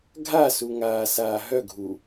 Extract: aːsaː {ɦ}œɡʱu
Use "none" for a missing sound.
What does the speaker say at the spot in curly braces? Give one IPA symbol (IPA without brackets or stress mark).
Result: ɦ